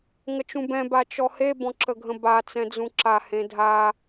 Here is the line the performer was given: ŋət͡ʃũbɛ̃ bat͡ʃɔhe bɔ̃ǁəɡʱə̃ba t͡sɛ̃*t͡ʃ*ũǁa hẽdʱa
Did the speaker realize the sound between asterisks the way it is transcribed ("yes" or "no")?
no